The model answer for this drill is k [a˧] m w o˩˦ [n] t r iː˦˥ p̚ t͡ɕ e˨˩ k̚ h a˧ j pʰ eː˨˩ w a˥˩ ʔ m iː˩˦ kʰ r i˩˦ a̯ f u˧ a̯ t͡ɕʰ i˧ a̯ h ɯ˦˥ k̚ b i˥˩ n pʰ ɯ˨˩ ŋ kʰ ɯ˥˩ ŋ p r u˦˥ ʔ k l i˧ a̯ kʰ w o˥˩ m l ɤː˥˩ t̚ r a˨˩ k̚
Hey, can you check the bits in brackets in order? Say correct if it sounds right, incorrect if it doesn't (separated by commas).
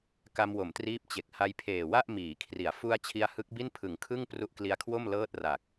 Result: correct, incorrect